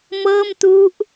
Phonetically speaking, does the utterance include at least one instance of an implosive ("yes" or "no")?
no